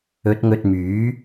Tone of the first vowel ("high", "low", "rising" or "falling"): rising